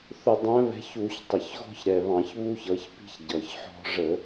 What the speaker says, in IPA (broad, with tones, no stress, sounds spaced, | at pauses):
θ ʊ˧˩˧ dˤ æ̃˨˦ β ɛ̤˨˦ ç u˧˩˧ ç tˤ ə˨˩ ç ɣ ɔ̤˦ ç ɾ ɛ˨˩ β ɑ̃˧˩˧ ç β u˦ ç ʌ˨˦ ç p i̤˦ ç ɟ ʌ˨˩ ç ħ ɔ̤˦ ʐ ə˧˩˧